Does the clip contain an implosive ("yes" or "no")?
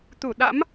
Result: yes